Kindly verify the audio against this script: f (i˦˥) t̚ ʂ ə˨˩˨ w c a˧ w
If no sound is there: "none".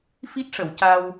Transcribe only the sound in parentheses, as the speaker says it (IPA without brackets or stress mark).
i˦˥